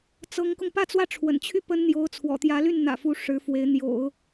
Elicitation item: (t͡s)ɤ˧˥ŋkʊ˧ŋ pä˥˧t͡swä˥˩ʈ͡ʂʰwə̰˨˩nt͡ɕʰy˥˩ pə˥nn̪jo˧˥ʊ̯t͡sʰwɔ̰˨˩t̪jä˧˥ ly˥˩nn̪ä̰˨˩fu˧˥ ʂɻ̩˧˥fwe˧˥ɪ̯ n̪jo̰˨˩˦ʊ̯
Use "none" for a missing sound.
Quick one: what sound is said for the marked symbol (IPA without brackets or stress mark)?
t͡s